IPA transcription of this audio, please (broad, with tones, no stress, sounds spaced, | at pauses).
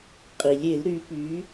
qʼ i˩ lʲ e˧˩˧ l ɾ y˩˧ p y˩˧